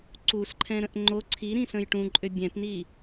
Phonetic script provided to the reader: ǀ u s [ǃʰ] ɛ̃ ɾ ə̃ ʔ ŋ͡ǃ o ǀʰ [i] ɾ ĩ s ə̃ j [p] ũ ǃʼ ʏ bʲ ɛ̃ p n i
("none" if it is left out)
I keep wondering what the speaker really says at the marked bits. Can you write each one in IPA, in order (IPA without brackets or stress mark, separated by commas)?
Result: ǃʰ, i, ʈ